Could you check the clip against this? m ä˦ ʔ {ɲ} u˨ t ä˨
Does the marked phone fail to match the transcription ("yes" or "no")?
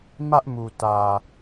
yes